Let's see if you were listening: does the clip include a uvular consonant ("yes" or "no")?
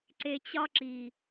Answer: no